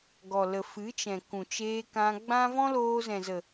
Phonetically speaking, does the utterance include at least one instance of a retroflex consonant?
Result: no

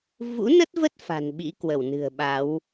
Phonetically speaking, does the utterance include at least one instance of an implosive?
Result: yes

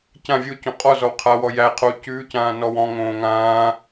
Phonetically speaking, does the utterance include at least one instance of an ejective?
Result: yes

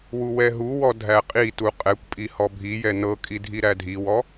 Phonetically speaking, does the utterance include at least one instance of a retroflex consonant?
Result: no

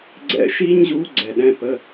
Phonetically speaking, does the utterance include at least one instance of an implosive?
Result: yes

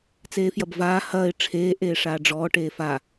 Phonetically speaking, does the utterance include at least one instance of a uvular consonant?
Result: no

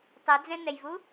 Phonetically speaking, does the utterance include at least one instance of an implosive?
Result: no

